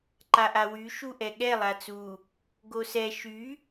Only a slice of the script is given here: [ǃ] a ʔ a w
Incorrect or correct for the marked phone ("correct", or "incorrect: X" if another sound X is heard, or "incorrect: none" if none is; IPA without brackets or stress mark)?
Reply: correct